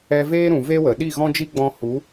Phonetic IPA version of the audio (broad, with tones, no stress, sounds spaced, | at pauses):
ɛ˧ v eː˦ ɾ ũ˨ v e˦ w ə˨ ɗ i˦˨ ɣ ɔ̃˦ d͡ʒ i˦ ɡ͡b ɔ̃˧ h u˨˦